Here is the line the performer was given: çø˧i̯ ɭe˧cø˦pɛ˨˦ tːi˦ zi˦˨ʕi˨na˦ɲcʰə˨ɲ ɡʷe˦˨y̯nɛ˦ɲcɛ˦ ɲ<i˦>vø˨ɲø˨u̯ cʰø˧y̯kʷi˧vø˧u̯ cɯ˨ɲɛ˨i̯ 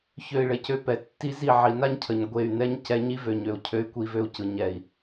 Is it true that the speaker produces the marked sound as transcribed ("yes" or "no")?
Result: yes